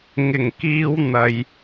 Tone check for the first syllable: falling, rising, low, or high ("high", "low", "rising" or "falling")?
low